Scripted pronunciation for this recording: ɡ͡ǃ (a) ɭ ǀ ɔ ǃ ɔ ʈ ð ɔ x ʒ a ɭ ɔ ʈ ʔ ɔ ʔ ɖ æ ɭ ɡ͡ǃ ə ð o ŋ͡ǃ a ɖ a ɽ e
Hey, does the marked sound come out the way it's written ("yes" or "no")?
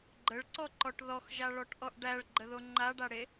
no